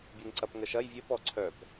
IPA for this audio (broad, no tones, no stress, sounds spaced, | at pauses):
bʲ ɛ ŋ ǀ ɐ p ŋ ə ʃ ɐ j vʲ ə p ɔ ǀʰ œ p